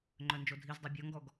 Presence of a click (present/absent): present